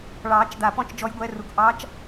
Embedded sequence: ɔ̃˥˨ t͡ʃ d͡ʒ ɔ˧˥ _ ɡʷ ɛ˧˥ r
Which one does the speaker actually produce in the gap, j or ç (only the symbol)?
j